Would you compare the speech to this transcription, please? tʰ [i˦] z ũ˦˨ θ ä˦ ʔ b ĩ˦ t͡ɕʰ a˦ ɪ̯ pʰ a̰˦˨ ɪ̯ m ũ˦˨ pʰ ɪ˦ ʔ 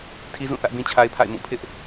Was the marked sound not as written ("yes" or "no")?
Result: no